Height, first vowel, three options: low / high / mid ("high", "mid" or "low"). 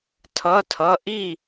mid